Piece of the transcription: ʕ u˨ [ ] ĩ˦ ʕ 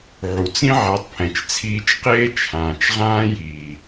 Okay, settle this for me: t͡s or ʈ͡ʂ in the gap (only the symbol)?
t͡s